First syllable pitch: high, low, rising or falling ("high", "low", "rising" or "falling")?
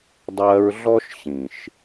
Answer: high